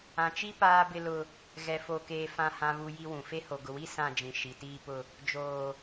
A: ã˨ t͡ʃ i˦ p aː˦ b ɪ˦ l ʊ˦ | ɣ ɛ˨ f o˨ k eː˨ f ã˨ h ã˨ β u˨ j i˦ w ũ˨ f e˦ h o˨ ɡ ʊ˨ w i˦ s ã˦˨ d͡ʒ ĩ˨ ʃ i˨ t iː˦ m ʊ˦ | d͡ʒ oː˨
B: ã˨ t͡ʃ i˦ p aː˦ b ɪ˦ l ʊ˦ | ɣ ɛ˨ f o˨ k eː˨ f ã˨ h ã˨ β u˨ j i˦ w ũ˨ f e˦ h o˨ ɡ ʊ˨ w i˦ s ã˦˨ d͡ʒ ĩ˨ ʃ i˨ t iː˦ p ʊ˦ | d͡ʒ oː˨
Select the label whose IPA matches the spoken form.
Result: B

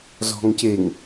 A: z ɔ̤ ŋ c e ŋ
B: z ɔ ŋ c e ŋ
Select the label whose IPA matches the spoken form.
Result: A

